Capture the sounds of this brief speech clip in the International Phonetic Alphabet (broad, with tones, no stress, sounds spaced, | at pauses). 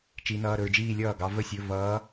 t͡ʃ i˧˥ n ʌː˧˥˧ ɾ ɵ˥˧ ɹ d͡ʒ iː˥˧ lʲ ʌː˥˩ ɡ ɑ˧˥ v ə˥˧ sʲ ɵ˧˥˧ v ʌː˧˥